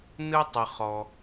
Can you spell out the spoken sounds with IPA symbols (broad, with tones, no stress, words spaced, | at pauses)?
nɯ˥ tˤə˨χɔ˨